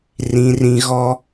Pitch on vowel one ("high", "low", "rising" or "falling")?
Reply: high